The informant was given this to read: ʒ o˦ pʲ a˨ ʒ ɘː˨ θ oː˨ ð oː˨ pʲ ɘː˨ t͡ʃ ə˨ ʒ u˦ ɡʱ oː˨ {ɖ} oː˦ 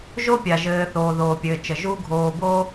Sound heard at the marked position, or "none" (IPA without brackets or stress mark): b